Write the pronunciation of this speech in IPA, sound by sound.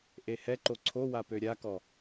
ʔ e h ɛ ǃ o ǀʰ o w a p ø ɾʲ a k ɔ

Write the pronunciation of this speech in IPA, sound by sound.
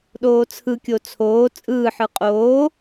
ɗ oː t͡sʰ ɯ kʲ o t͡sʰ oː t͡sʼ ɯː ħ ɯ qʼ oː

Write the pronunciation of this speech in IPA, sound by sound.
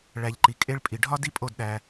ɭ æ˨ ʎ ǃ i˨ kʼ e˧ ɭ pʼ i˨ ɖʱ ɒ˦ d i˦ pʼ o˦˨ d ɗ æ˧

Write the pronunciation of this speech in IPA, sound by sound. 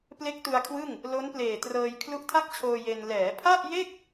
p l e˦˥ k̚ t u˧ a̯ kʰ w ɯ˥˩ ŋ | l o˦˥ n p l eː˨˩ t r ɤː˧ j kʰ l u˦˥ ʔ tʰ a˥˩ k̚ t͡ɕʰ oː˧ j e˧ n l ɛː˩˦ pʰ a˥˩ ʔ j e˥˩ k̚

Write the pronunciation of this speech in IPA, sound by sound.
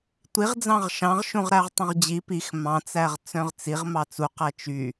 tʷ i ʁ d͡z ɑ̃ ʁ ʃ ɑ̃ ʁ ʃ ũ ʁ ɾ æ ʁ tˤ œ̃ ʁ d͡ʑ i p i x m ɑ̃ t͡s æ ʁ t͡s œ̃ ʁ t͡s i ʁ m ɑ t͡s u q æ t͡ʃ y

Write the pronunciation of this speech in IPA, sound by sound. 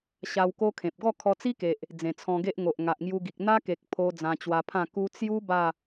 ɕ a˧ w k o˦ kʰ ẽ˨ p̚ ɡ ɔ˥˧ kʰ ɔ˧ t͡s i˦ k e˨ ʔ | d͡z ẽ˨˩ t͡sʰ ɔ̃˧ ɡ e˦ ʔ ŋ o˨ ʔ ŋ a˨ ʔ ŋ j u˧ ɡ i˨ k̚ n̪ a˦ k e˨ k̚ pʰ o˧ d͡z ã˧ t͡ɕ w a˧ pʰ ã˥˧ k u˧ t͡s j u˦ b a˥˧

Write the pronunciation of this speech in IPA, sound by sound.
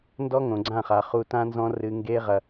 n d ɔ˦ ŋ õ˨ ɡ͡ǀ ã˦˨ χ a˨ χ uː˧ t ã˦ n z ɔ̃˦ r ɨ˧ ŋ ɡ eː˦ ʁ ɐ˧

